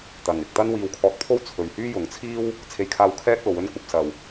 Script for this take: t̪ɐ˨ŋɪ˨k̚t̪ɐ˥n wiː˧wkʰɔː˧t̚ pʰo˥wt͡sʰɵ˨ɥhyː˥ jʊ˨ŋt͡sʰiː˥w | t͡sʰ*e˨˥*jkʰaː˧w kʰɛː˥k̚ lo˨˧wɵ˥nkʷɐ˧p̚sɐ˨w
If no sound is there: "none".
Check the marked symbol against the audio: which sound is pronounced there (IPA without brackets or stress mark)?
e˧